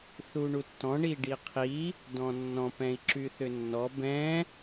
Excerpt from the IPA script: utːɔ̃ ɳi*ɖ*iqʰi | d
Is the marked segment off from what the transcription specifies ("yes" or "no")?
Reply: no